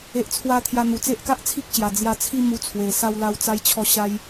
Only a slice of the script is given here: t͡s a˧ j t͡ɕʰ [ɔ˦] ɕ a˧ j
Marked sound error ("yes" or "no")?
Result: yes